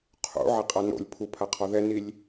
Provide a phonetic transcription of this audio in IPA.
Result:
qʰ ṵ ʕ e qʼ a n o̰ lʲ pʰ u pʰ a qʰ ɔ ð ɛ n i lʲ

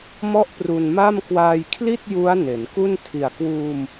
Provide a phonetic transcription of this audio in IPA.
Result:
m ɔ˥˩ ʔ p r u˧ n m a˥˩ m k w aː˧ j kʰ l i˥˩ t̚ j u˦˥ a̯ n e˩˦ n k u˥˩ n tʰ i˨˩ a̯ k w uː˧ m

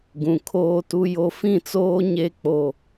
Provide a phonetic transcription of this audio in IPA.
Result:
ɡ ũ˨ kʰ oː˦ t u˦ j o˦ f ĩ˦˨ t͡s oː˦ ɲ e˦ k͡p o˦

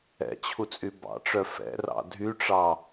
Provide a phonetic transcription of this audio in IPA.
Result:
ɛ̰ t͡ɕʰ u t͡sʼ y b ɑ̰ ʈ͡ʂ œ f ɛ̰ r ɑ̰ dʱ y ʈ͡ʂ ɑ

